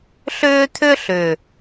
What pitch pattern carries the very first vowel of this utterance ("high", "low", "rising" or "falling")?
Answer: high